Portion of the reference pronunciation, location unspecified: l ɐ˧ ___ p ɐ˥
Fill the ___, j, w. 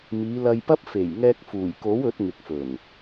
j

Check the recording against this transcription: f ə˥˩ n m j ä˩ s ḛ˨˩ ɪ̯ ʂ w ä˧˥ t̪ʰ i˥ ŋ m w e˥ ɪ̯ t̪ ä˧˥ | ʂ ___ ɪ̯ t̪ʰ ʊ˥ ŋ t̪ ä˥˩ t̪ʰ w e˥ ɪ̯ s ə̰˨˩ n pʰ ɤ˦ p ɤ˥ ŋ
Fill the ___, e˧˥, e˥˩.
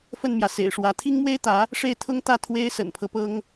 e˥˩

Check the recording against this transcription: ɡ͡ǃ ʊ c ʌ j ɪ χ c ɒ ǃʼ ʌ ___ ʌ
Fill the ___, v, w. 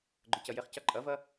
v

